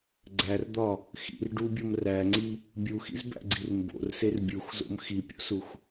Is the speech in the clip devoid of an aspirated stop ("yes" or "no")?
yes